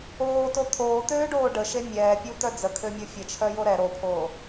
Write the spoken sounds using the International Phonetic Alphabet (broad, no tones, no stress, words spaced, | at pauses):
oːto t̪ʰoːt̪øːɖoː ɖəʃe mʲɛːpʲut̪œ d͡zəkʰømʲo fʲət͡ʃʰœjo ɾɛ ɾopʰoː